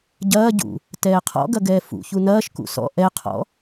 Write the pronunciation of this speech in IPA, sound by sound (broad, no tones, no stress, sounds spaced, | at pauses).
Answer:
ɟ ɐː ɟ ṵ | t ɛː qʰ ɔ̰ ɡ ɐ ɡ ɛː f ṵ ç u n ɐː ʃ k ṵ s ɔ̰ ʔ ɛ qʰ ɔ̰